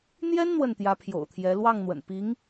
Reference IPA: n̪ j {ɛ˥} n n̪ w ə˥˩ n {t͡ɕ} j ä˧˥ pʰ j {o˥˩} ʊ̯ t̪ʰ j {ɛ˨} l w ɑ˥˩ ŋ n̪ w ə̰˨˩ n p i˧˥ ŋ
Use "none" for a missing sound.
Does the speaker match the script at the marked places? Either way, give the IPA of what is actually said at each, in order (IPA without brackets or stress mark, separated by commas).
ɛ˥, t̪, o̰˨˩, ɛ˧˥